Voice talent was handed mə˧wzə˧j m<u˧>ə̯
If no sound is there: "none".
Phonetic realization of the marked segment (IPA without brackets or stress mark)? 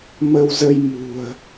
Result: ṳ˨˩